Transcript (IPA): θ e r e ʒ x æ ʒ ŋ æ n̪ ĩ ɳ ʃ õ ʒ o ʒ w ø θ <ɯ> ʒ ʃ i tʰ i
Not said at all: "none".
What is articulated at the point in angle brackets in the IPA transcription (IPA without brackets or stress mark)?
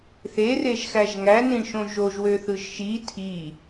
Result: ɯ